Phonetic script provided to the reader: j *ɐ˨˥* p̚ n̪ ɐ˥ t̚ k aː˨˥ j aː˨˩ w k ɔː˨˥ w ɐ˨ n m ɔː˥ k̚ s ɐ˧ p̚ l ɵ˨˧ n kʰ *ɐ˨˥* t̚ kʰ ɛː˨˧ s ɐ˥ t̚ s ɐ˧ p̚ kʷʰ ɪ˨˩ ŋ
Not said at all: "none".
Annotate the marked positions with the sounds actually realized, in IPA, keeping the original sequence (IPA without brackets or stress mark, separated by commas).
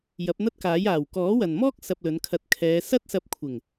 ɐ˨˥, ɐ˧